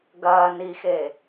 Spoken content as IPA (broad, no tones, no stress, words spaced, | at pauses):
ɡɐː nixe